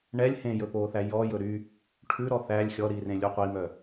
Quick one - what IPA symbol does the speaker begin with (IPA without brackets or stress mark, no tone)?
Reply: ɳ